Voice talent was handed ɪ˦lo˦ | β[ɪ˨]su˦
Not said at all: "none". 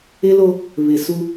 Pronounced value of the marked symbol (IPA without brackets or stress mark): ɪ˨